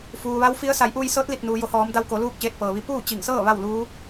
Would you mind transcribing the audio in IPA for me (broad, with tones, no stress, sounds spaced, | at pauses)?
f uː˩ ʋ a˧˥ w f i˧˥ ə̯ s a˩˧ j ʔ uː˧ j s ɤː˧˥ t̚ l i˧˩ t̚ n uː˩ j o˩˧ h ɔː˩˧ m d a˧ w k o˩˧ l uː˥˨ k̚ t͡ɕ eː˧ t̚ p ɤː˩ ʋ i˧ p uː˥˨ t͡ɕ i˧˩ ŋ s ɤː˥˨ ʋ a˥˨ w l uː˧˥